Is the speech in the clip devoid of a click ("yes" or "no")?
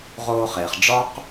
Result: yes